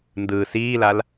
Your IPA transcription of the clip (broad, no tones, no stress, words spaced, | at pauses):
ndɯ siːlal